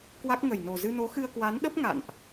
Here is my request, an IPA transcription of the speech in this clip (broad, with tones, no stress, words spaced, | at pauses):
kwa˦˥k̚ŋə˨˩j no˨˩zɨ˧no˨˦ xɨ˧ə̯kwa˨˦nɗə˦˥p̚ ŋa̰˧˨nʔ